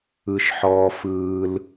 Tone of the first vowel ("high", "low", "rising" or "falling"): high